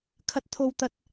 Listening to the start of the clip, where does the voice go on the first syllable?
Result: high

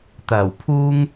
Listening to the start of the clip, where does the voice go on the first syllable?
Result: low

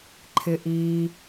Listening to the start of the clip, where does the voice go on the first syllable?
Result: low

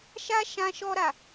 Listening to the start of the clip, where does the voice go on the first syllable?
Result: high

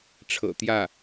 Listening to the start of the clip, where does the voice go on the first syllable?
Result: low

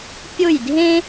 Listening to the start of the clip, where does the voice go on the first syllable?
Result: falling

